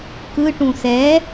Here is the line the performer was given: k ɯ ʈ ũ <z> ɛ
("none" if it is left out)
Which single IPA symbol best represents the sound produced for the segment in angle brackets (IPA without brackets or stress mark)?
s